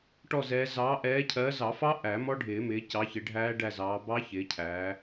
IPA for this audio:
ʈ ɔ˦˨ z ɛː˨˦ z ɑː˨˦ ʔ ɛː˨˦ cʰ ɜː˨˦ z ɑ˨˩˦ f ɑ˦˥ ʔ æ˨˩˦ m ɔ˦˥ ɖʱ ɪː˨˩˦ m ɪː˨˦ c ɑ˨˦ ç ɪ˨˦ ɖʱ æː˦˥ ɖ æ˦˨ z ɑː˨˦ b ɑ˦˥ ç ɪː˨˦ cʰ æː˨˦

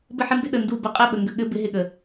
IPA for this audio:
b ɘ˦ ħ ɪ˦ m b ɪ˦ ɗ ə˨ n d u˦˨ b ə˧ qʼ ɘ˦˨ ɓ ə˨ ŋ ɡ ə˨ ɠ ɘ˦ b ɪ˨˦ ɦ ɪ˨ ɠ ə˨

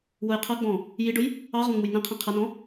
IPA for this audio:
w ʊ j qʰ ʌ ɡ͡b ɔ̃ | j i ɖ ʊ j | ɑ ʁ ɔ̃ ŋ͡m u j n ĩ qʰ ĩ qʰ ʌ n ɔ̃

